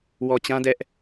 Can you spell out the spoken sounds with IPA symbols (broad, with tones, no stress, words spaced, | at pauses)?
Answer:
wɔ˨t͡ɕã˦dɛ˦ʔ